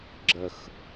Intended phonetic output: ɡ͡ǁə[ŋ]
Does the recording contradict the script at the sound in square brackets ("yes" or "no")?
yes